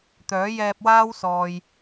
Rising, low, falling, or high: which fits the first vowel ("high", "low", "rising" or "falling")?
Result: rising